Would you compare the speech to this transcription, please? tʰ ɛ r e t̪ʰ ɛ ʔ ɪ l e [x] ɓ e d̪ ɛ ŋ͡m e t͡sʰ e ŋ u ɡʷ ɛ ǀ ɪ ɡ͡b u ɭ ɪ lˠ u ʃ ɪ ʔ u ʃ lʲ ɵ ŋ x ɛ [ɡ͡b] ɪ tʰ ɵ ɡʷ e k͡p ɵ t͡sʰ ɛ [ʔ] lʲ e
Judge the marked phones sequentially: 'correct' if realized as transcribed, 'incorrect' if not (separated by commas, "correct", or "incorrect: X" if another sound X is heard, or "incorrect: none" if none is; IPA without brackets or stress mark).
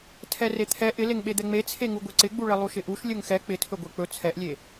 incorrect: ŋ, incorrect: k͡p, correct